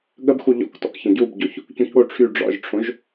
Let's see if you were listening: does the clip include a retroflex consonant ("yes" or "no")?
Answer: yes